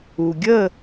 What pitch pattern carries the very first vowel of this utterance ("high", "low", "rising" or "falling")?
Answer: low